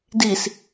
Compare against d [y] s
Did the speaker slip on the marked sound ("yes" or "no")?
yes